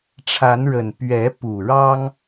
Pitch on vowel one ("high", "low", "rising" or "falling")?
rising